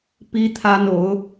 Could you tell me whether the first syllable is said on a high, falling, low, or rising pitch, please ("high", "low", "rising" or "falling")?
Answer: high